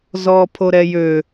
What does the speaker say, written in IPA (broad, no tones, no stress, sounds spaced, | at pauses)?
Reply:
z ɔː pʰ o ɾ ɛ j ø